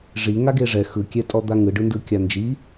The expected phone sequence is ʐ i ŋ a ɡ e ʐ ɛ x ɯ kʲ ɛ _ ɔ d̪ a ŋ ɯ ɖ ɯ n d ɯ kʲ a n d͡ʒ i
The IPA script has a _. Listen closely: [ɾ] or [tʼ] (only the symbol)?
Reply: tʼ